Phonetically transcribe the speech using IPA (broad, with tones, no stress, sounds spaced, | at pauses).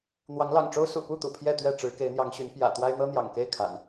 n̪ w ɑ˨˦ ŋ l ɑ̰˨˩ ŋ ʈ͡ʂ o˦ ʊ̯ s ṵ˨˩ p u˥˨ t̪ ṵ˨˩ pʰ j ɛ˥˨ t̪ ɥ ɛ˥˨ ʈ͡ʂ ɻ̩˨˦ k e˨˦ ɪ̯ n̪ j ɑ˨˦ ŋ ɕ y˨˦ n p j ä̰˨˩ t̪ w a˦ ɪ̯ n̪ ɤ˦ n̪ j ɑ̰˨˩ ŋ k e˥˨ ɪ̯ kʰ a̰˨˩ n